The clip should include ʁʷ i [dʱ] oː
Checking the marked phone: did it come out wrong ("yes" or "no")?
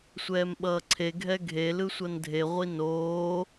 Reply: yes